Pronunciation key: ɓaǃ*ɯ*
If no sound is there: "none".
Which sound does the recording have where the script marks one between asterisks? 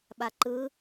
ɯ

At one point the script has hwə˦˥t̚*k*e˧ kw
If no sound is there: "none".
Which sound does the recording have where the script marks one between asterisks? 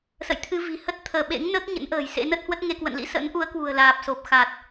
ŋ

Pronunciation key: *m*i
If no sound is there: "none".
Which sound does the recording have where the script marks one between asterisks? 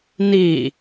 n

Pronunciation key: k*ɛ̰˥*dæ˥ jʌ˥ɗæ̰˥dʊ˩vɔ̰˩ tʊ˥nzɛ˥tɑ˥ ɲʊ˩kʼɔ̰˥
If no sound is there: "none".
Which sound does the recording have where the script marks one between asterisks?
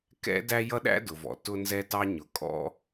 ɛ̰˥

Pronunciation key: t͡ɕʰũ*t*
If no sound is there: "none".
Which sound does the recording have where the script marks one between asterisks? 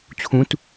t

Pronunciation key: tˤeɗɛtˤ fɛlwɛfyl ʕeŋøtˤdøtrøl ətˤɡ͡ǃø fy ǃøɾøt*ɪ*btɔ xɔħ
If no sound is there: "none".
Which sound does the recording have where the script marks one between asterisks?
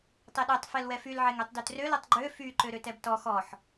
ɛ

